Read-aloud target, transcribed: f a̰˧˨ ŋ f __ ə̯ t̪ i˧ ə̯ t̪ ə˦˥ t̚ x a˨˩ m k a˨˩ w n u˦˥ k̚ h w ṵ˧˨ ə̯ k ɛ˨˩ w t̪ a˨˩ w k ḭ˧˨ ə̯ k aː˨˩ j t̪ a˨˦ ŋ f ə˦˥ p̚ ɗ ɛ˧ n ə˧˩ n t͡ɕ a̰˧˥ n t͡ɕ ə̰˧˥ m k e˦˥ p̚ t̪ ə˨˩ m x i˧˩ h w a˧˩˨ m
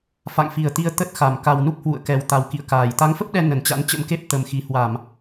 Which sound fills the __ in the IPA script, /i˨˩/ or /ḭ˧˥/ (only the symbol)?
i˨˩